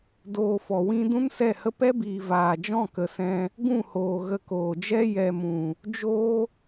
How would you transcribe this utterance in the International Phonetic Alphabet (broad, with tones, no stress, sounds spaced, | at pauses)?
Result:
d oː˧ f ɔ˨ w ĩ˦ d ũ˦ n s ɛ˦˨ h ə˦ p ɛ˦ b iː˨ v aː˨ d͡ʒ ɔ̃˦˨ k ə˨ s ɛ̃˧ | ɡ ũ˦˨ h oː˨ ɣ ə˧ k oː˨ d͡ʒ ɛ˦ j ɛ˨ m ũ˨ | d͡ʒ oː˦